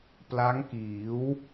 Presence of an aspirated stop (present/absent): absent